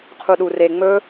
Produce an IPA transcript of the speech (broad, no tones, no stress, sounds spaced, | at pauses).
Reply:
qʰ u ɗ u r e ŋ͡m ɵ